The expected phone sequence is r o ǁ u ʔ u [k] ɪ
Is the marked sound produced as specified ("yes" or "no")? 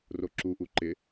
no